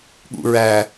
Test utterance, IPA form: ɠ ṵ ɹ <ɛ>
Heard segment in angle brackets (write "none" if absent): æ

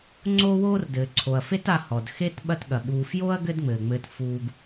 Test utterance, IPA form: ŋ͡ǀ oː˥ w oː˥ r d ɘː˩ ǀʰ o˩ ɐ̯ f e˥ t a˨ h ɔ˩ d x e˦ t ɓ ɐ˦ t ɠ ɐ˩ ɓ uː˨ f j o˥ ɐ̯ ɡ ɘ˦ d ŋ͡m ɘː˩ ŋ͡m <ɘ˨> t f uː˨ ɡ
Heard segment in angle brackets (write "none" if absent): ɘ˨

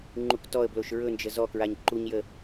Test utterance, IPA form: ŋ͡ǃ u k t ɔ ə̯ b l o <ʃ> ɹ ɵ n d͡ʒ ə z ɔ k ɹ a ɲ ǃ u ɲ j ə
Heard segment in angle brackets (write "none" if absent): ʃ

